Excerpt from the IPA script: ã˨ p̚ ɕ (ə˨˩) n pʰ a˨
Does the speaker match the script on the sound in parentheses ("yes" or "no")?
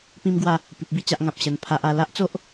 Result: yes